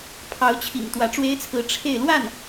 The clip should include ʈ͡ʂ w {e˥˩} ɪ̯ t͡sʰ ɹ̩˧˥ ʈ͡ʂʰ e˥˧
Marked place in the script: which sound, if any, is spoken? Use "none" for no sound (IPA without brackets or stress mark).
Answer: e˥